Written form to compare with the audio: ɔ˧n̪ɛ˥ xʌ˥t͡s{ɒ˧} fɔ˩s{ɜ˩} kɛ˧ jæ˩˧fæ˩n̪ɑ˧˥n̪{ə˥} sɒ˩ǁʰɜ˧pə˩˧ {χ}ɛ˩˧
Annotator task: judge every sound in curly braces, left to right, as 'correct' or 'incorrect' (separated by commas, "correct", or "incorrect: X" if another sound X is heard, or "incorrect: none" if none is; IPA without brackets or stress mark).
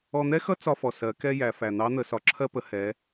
correct, incorrect: ɜ˩˧, incorrect: ə˩˧, incorrect: h